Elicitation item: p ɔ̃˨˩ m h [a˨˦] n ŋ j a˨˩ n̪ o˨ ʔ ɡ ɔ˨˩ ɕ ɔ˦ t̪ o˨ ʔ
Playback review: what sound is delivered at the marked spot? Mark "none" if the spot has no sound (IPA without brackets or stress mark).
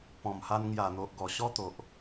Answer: a˧